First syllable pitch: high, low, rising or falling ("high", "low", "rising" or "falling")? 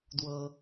low